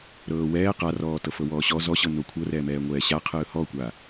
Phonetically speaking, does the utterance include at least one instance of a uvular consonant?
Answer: yes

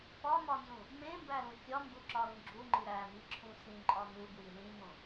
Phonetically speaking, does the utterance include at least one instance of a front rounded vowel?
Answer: no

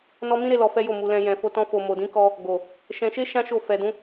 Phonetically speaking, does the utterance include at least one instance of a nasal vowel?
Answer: yes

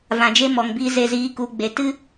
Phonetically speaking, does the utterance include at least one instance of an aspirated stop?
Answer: no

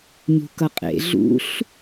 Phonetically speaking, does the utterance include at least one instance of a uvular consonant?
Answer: yes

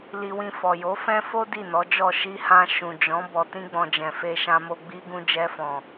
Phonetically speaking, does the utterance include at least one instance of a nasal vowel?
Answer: yes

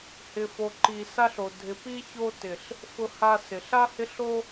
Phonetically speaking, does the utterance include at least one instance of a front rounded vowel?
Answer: no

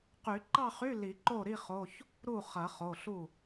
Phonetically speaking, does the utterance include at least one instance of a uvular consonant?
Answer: yes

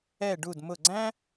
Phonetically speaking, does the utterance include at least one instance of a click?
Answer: yes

